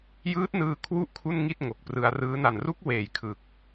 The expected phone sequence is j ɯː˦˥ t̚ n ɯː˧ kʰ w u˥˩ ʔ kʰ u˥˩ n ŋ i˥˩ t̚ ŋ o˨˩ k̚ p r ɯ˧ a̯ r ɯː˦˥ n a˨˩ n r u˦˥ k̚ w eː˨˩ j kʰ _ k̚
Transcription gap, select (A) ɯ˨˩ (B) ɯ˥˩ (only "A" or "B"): A